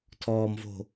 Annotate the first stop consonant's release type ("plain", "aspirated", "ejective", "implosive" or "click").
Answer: aspirated